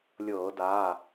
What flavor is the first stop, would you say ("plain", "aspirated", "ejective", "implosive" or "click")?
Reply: plain